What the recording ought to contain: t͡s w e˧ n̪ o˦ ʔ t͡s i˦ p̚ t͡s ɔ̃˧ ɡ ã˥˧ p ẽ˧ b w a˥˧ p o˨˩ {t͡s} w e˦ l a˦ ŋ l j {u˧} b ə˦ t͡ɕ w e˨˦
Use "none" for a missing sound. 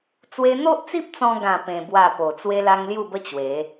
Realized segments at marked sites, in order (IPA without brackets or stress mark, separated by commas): t͡s, u˥˧